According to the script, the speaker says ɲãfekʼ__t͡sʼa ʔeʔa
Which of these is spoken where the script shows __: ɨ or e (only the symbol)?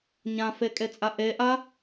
e